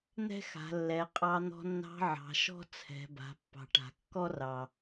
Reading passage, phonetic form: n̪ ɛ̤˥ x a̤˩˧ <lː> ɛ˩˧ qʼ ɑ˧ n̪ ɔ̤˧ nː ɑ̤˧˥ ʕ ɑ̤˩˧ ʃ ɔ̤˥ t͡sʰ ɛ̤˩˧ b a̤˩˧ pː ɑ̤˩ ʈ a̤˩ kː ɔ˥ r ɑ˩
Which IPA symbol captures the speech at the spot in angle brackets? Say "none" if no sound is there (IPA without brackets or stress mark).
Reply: lː